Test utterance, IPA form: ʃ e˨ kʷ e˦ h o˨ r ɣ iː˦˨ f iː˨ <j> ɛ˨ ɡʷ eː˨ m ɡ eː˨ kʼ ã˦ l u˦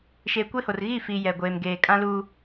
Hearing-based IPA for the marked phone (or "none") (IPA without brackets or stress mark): j